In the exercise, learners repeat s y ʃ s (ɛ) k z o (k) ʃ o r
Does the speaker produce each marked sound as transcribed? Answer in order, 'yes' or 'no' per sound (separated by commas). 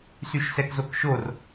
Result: yes, yes